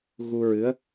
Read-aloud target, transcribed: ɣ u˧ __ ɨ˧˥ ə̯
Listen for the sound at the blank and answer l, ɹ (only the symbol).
ɹ